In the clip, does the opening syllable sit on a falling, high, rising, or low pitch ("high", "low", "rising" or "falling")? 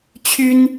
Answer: high